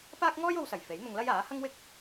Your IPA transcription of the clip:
paː˥k̚ŋɔː˥jo˧wsɐ˨˩j fe˨˥jn̪ʊ˧ŋlɐ˥j aː˨˥ hɐ˥ŋwɪ˥k̚

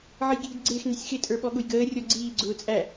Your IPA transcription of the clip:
ʕəjɡʱidɡ͡ǀɪːx nɪsʲxɪ tʼə˞ɓɔɠʊjɡəː rʲɔɡ͡ǀiː ɡ͡ǀʊːt͡sʼæ

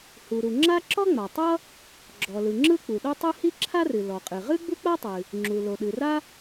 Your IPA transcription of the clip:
hu˩ɾu˩ŋ͡ǁa˥ ǁɔ˥ŋ͡ma˩tˤʌ˥ | ɡ͡ǁɔ˩lɯ˩ ŋ͡ǁɯ˥k͡pu˩ɗo˥tˤɯ˥ hi˥ǁʰa˥rɨ˩ lɔ˩qʼɨ˩ ʁɨ˥ɡ͡bu˥k͡pa˥tˤɨ˩ | ŋ͡ǁu˩ lo˩ɗɨ˩ra˥

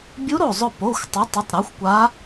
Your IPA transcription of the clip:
bʲu˧˥ɾo˧˩zˤʊ˧˩ po˩˧˩xʷtˤʊ˩˥tˤɪ˩˧˩tˤ ɾa˩˥xʷkʷa˧˥

